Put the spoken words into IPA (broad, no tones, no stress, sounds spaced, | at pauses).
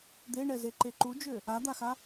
d̪ e ɳ ɛ z e ǃ e ǃ u d͡ʒ ø | a d̪ a x a